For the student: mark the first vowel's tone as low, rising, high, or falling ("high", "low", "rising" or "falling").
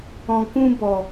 low